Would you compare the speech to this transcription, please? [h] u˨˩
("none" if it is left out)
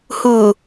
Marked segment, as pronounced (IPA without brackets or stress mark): h